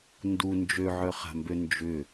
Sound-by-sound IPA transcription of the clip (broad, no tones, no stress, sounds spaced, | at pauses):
n d u n d͡ʒ ø ʕ œ χ a̤ m b ø n d͡ʒ ʏ